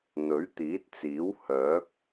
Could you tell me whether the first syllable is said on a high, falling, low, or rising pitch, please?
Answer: rising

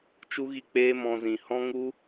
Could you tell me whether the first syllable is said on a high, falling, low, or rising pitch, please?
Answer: high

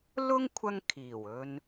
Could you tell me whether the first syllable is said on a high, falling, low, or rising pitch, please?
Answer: high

